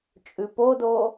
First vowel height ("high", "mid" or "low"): high